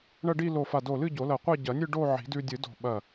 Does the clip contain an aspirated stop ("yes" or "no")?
no